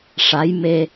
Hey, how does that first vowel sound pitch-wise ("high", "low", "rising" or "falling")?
rising